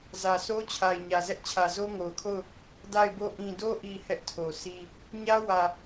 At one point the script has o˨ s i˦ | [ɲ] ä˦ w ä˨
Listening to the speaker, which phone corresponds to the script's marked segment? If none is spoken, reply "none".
ɲ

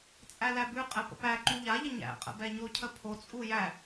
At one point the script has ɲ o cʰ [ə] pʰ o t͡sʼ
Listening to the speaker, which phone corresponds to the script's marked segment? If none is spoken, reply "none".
ə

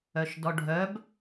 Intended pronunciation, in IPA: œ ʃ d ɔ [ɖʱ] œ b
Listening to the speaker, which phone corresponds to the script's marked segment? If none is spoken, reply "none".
ɖʱ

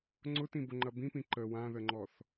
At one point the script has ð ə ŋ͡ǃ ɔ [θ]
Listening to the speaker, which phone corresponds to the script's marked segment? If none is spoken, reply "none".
θ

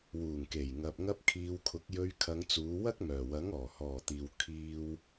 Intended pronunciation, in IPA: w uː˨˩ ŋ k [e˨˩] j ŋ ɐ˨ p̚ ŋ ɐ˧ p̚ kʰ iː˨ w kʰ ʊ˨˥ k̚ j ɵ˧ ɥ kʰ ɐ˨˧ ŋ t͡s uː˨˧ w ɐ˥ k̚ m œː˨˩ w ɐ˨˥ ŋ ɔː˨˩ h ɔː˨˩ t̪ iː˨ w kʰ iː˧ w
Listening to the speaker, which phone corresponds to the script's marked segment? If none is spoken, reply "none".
e˨˩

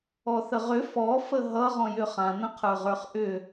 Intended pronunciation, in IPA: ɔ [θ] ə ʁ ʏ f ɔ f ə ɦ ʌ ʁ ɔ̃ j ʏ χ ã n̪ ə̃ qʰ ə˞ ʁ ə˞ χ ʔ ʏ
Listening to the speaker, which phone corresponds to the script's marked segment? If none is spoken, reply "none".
θ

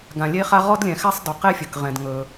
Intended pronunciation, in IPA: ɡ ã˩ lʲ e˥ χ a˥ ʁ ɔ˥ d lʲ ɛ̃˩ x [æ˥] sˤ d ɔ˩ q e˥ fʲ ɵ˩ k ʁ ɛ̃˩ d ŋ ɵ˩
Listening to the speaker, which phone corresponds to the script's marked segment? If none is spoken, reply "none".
æ˥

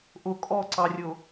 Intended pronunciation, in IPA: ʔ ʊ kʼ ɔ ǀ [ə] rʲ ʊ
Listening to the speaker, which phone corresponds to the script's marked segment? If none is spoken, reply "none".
ɑ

